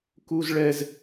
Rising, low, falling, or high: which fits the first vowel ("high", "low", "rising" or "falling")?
high